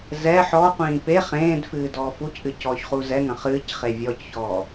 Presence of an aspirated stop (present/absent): absent